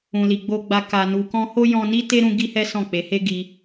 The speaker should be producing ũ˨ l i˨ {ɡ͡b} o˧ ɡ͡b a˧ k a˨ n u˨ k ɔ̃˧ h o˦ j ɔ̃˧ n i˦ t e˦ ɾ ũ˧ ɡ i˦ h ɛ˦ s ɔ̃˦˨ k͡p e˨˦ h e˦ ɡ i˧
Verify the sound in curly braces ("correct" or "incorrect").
correct